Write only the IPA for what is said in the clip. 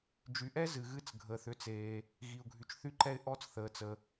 d͡ʒ y˩ ʔ ɛ˥ z ɨ˩ ɣ ɨ˥ t͡s ɡʱ əː˩ θ ʏ˥ t͡s eː˩ | ɣ i˩ ʊ̯ ɡʱ y˩ t͡ʃ θ y˥ ǃ ɛ˥ ɪ̯ ʔ ɔ˥ t͡s θ əː˩ t͡s ə˩

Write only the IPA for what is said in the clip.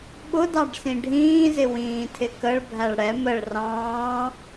ɓ ʊ d ɑ ɖ s ĩ ɖʱ ĩː z ɪ w ĩː tʰ ɪ k ə ɭ bʱ æ ɭ ɽ ɛ m ə ɭ r ɑ̃ː

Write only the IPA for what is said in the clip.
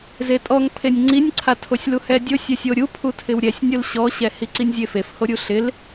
z e tʼ ɔ ŋ pʰ e nʲ ŋ͡ǀ i nʲ ǀʰ a tʰ o sʲ l u h ɛ dʲ ʊ sʲ ɛ sʲ o ɾʲ u pʰ u tʰ ɪ w ɾʲ ɛ sʲ nʲ ʊ l ɕ ɔ ɕ ɛ h i ǀ i nʲ zʲ e f e f h o ɾʲ u ɬ ɪ l

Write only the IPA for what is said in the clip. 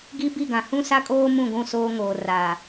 ɡ i˦ b i˦˨ ɡ ã˨ h ũ˦ s a˦ kʼ oː˦ m ũ˦˨ ɡʷ ũ˦˨ s oː˦ ŋ oː˨ r a˨

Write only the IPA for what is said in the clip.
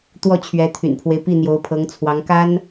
t̪ w ɔ˥˩ t͡ɕʰ ɥ ɛ˧˥ t̪ʰ y̰˨˩ n pʰ w e˦ ɪ̯ p i˥˩ n̪ j o˧˥ ʊ̯ pʰ ɤ˧˥ ŋ t͡sʰ w ɑ˧˥ ŋ k a˥ n

